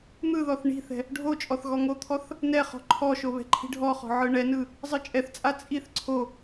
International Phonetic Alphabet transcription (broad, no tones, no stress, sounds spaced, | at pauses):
n̪ ɯ ð ɔ θ ɳ i̤ θ ɛ̤ | ɖʱ o t͡ʃʼ ɔ θ ɣ ɔ ŋ o t̪ʰ ɔ θ | n ɛ χ ɔ̤ ǃʰ ɔ ʃ o β ɛ̤ ǃʰ i̤ ɖʱ ɔ χ ɔ̤ ʕ ɯ ɳ ɛ n ɯ | zˤ ɯ t͡ʃʼ ɛ θ t͡sʼ a t͡sʼ i θ ǀʰ o